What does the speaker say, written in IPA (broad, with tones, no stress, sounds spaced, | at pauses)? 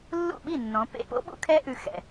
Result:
lː ṵ˥˩ ɓ i˥˩ nː ɔ̃˩˧ p ḛ˧˥˧ p o̰˦˥ ɓ ṵ˦˥ kʰ ɛ˦˥ ʔ ʉ˧˩ x ɛ̰˧˩